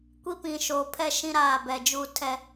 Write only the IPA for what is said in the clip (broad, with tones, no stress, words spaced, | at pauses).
kʷi˦pĩ˨ʃoː˨pʰɛ˦ ʃĩ˦ɾaː˦˨bɛ˨d͡ʒuː˦ tʰɛ˦